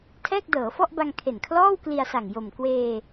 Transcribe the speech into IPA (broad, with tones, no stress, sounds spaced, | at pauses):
tʰ ɛː˥˩ k̚ d ɤː˩˦ f ɔ˥˩ ʔ b a˧ ŋ kʰ e˨˩ n kʰ l ɔː˥˩ w k l i˧ a̯ s a˨˩ ŋ j o˨˩ m k w eː˧